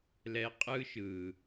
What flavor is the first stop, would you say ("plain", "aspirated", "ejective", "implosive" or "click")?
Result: ejective